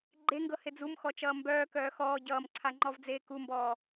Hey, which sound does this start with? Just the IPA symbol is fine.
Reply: ɡ͡ǃ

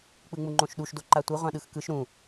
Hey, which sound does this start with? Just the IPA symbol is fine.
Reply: k͡p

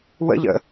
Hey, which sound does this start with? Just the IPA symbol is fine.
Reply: w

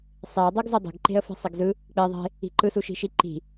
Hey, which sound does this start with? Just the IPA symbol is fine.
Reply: sˤ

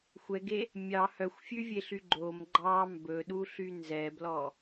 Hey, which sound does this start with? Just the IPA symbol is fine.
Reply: xʷ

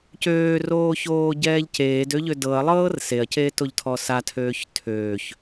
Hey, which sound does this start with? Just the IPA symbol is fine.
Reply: c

